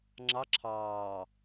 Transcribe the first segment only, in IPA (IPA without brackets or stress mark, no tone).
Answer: ŋ͡ǁ